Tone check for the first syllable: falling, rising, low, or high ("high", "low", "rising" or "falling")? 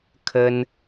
high